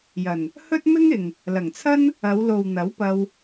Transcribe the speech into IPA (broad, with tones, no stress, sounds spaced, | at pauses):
j ɐ˨˩ n | h ɵ˥ t̚ m ɪ˥ ŋ ɪ˨ ŋ | l ɐ˨˩ ŋ t͡sʰ ɐ˥ n | ɐ˨˧ w l o˨ w n̪ ɐ˨˥ w p ɐ˧ w